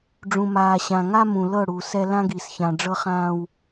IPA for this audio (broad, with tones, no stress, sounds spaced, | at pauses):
ɖ͡ʐ ũ˨ m aː˨ ɕ ã˨ ŋ a˦ m ũ˨ l ɤ˦˨ ɽ u˨ s ɛ˦ l ã˦ ɡ i˨ s ç ã˨ ɖ͡ʐ ɤ˦ χ ãː˦ w